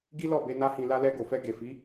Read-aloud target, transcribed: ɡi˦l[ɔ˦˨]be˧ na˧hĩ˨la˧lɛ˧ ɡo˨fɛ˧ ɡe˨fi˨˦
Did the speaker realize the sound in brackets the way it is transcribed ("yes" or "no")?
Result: yes